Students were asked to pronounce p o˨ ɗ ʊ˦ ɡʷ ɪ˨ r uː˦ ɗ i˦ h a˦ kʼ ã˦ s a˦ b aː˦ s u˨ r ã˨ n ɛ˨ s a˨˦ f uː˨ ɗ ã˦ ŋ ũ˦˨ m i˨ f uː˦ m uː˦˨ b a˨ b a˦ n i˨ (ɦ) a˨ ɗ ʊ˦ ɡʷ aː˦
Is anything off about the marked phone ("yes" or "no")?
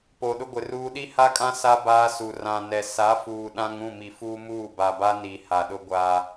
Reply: yes